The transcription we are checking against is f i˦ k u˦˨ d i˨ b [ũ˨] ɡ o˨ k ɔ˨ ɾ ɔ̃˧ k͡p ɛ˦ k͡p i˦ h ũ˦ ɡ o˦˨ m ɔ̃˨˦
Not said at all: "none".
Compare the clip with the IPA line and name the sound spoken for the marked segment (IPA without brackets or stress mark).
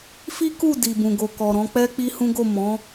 ũ˨